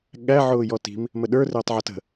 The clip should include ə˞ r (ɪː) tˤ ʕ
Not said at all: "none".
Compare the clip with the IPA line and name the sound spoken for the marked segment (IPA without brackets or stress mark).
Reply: ɪː